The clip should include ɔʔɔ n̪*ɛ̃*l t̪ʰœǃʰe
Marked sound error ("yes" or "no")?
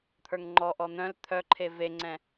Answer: yes